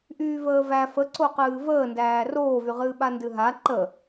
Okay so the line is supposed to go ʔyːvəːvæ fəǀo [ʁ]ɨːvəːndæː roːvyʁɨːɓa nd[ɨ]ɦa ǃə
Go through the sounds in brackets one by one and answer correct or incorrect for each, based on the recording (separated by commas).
incorrect, correct